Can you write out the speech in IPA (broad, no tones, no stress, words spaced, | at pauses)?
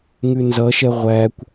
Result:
ŋʉnzʌʃɛ ʁʷækʷ